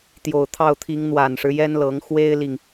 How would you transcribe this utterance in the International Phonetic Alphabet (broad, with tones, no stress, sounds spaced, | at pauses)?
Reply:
t̪ j o˨˩ ʊ̯ t̪ʰ ɑ˥˩ ʊ̯ t̪ʰ i˧˥ ŋ n̪ w a˨˩ n ʂ ɻ̩˦ j ɛ˥ n l ɤ˧˥ ŋ x w e˥ ɪ̯ l i˨ ŋ